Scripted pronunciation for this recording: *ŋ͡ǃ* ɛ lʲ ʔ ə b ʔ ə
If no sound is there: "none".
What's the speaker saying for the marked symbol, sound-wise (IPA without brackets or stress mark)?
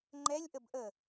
ŋ͡ǃ